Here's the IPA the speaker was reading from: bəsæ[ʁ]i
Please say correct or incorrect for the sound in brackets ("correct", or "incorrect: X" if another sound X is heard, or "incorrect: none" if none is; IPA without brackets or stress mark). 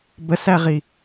correct